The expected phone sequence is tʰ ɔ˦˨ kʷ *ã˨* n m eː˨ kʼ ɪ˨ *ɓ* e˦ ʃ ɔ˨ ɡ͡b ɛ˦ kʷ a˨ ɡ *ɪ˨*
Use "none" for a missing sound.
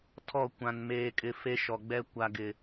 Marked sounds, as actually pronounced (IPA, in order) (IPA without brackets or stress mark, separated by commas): ã˨, f, ɪ˨